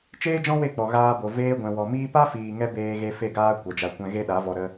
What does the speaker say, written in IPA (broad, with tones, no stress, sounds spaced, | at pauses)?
t͡ʃ eː˦ d͡ʒ ɔ̃˦ w e˦˨ k͡p ɔ˨ ɣ aː˧ b o˨ v eː˧ ɡʷ ɛ̃˨ w ɔ˨ m iː˦ p a˦ f iː˨ ŋ ɛ˧ b eː˧ ɣ e˧ f e˦˨ ɡ aː˦ kʷ ɛ˨ d͡ʒ a˧ kʷ ɛ̃˦ ɣ e˦ ɗ a˨˦ v ɔ˧ ɾ ə˦